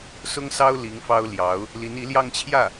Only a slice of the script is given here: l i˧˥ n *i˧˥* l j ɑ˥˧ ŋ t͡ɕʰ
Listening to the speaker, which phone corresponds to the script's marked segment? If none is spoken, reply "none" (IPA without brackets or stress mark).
i˧˥